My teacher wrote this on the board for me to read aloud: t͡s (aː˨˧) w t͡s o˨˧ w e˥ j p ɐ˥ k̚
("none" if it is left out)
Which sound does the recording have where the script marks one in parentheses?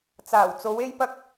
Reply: aː˨˩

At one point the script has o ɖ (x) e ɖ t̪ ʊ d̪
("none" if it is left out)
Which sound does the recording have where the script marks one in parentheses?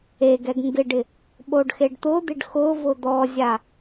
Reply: x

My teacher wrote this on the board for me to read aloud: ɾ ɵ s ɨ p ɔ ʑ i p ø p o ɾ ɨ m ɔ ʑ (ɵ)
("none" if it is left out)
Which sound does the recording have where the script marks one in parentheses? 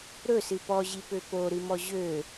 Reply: ø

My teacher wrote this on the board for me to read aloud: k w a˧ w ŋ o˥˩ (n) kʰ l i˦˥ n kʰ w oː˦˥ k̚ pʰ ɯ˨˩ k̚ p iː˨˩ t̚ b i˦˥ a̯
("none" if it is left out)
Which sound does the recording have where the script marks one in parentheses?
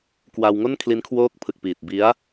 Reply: n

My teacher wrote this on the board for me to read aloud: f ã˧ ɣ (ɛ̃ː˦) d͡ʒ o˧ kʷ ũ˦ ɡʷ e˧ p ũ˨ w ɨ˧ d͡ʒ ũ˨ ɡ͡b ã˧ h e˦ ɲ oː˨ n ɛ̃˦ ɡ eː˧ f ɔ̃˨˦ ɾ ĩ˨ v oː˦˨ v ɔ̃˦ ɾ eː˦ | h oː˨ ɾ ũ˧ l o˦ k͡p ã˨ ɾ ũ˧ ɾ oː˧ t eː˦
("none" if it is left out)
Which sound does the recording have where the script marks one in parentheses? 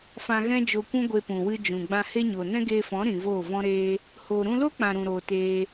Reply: ɛ̃˦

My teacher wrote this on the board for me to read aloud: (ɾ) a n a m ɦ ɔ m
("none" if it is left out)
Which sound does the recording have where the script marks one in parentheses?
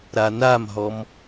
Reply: ɾ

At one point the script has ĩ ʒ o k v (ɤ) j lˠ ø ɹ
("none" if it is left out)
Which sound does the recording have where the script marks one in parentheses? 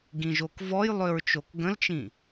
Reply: ɔ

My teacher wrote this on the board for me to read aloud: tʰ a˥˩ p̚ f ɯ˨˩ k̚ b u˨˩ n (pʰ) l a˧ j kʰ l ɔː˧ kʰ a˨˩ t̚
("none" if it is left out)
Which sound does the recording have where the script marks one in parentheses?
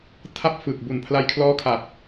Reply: pʰ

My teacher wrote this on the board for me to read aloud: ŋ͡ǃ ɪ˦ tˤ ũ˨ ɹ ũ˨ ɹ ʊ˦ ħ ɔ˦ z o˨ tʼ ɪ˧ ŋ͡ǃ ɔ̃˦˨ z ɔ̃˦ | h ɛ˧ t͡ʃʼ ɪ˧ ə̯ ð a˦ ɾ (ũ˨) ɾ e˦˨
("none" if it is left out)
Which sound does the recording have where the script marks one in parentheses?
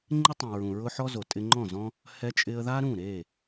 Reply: ũ˦˨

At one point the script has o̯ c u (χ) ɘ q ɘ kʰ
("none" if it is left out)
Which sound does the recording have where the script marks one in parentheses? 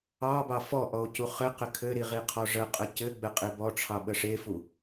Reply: χ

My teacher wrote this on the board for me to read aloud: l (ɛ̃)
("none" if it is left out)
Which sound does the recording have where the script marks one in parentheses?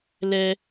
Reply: ɛ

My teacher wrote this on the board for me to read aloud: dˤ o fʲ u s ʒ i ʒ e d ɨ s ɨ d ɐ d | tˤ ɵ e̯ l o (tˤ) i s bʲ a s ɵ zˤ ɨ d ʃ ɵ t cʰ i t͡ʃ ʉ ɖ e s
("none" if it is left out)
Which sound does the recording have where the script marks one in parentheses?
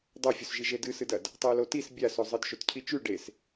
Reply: t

